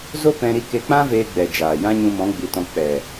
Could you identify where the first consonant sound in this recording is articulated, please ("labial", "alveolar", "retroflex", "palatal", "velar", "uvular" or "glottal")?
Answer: alveolar